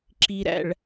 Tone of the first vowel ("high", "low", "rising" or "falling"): low